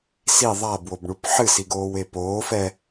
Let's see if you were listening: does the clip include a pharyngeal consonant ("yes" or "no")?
yes